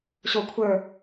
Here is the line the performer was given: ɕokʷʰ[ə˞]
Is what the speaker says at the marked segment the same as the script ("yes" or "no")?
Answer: yes